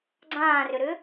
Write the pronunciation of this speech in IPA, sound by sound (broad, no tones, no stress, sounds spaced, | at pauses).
ɡ͡ǀ ãː r ʏ ɾ ʏ